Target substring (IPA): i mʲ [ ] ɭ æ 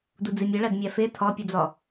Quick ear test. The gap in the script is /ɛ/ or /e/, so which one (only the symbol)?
e